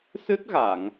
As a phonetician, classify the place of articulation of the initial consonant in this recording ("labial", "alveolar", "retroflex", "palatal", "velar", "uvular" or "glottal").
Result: alveolar